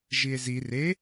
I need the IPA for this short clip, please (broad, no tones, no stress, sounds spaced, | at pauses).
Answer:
ʒ i e̯ z i r e